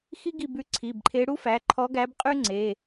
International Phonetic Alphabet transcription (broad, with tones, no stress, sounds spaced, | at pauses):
x i˥ ɡ i˦˨ b ʉ˧˥ ǀʰ i˩˧˩ b ǃʰ e˧˥ ɽ u˥ f æ˩˧˩ ǃʰ ɔ˧˥ ɡ æ˧˥ b qʼ ʉ˥ ŋ͡ǀ e˩˧˩